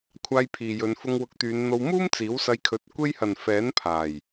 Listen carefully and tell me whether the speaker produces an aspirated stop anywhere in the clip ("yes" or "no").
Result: yes